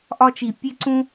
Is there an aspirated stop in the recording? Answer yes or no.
no